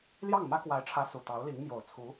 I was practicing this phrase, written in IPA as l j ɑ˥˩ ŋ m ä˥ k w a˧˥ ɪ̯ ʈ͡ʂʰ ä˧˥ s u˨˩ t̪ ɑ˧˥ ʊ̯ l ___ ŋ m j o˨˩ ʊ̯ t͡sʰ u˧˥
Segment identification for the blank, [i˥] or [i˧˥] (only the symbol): i˧˥